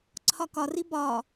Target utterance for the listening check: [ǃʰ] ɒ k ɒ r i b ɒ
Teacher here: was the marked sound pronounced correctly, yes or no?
no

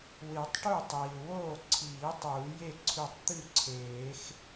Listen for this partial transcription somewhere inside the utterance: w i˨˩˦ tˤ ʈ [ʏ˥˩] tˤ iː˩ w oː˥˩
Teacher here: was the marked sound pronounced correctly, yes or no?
no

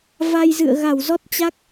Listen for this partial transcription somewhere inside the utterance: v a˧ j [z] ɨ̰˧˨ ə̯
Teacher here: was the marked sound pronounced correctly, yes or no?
yes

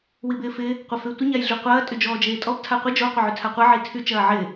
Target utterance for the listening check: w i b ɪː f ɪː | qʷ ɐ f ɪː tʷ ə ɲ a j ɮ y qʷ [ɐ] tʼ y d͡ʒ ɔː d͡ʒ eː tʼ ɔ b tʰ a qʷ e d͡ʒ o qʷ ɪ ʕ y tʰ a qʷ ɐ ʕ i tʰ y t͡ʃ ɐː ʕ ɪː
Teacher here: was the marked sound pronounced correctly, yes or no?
no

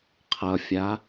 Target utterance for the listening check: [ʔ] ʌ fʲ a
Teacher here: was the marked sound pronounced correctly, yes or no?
no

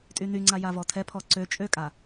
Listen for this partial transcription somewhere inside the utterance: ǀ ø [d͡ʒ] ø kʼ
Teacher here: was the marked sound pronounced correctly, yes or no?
no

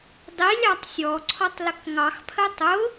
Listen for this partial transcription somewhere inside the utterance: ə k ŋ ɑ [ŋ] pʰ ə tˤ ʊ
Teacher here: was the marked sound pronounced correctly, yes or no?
no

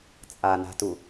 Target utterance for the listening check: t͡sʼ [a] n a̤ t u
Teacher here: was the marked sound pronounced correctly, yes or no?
yes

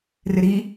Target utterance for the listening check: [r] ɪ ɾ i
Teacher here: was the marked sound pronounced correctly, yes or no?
yes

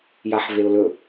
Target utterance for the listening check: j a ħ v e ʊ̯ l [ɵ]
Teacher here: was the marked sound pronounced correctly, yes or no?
yes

